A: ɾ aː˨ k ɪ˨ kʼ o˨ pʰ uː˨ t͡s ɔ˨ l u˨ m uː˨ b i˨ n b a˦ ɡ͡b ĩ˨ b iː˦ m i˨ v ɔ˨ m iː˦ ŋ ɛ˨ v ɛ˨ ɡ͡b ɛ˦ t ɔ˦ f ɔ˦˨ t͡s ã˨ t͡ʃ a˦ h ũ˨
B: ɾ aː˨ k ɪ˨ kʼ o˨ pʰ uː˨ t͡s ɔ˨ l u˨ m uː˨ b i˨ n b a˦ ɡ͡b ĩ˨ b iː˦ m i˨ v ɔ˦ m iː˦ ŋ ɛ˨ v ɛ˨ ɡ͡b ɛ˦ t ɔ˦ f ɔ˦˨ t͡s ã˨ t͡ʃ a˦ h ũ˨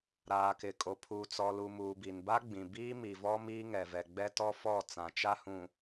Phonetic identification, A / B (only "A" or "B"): B